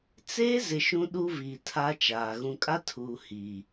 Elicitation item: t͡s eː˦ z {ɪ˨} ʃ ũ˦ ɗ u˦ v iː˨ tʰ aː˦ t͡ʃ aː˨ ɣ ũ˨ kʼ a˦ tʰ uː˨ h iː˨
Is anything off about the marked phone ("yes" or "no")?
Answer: no